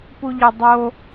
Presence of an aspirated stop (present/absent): absent